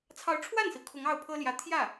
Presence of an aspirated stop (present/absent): present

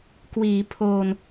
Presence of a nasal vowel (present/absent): absent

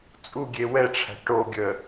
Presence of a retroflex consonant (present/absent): present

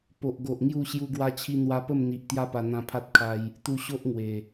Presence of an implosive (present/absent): absent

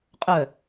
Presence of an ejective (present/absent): present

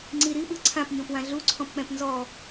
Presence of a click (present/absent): present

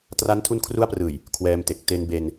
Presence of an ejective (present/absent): absent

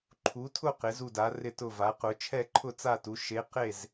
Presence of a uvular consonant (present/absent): present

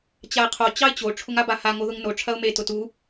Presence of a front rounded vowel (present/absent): absent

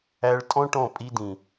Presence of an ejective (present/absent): present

